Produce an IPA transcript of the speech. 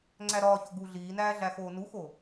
ŋ͡ǀ æ ɾ ɒː ç o ɡ u ɮ iː n æː ɮ æ x oː n u x o

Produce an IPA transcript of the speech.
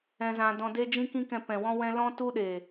ɛ̃˧ z ã˧ d ɔ̃˧ d e˦ d͡ʒ ĩ˦ k ĩ˦ k ɛ̃˧ p ɛ̃˨ w ɔ̃˦ w ɛ̃˦ l ɔ̃˦ t u˦ ɗ e˨

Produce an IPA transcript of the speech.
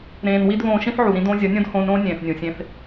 ɾ ẽː˨ n w i˧ d β õː˧ ʃ ĩ˦ θ ʕ u˨ ɾ ĩ˧ d õː˧ zʲ ʌ˨˦ nʲ õ˦ d h õː˧ n ɾ õː˦ nʲ ẽː˨ θ nʲ ũ˨ sʲ ẽ˧ θ

